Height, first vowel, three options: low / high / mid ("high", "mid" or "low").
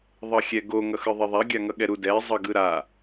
mid